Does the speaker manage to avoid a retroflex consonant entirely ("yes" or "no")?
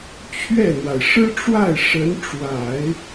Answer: no